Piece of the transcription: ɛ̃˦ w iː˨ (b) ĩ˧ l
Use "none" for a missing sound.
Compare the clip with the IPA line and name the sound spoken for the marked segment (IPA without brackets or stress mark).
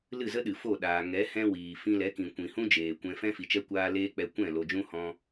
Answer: f